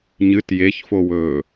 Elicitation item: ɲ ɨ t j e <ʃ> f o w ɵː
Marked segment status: incorrect: ç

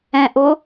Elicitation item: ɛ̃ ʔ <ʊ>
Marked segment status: correct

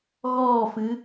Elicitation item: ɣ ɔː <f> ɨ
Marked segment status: correct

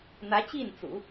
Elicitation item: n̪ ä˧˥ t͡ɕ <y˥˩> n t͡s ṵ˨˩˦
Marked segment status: incorrect: i˥˩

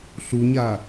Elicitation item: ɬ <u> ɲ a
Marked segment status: correct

